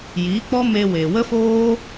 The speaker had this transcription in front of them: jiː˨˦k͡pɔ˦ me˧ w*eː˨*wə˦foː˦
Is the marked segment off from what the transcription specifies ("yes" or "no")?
no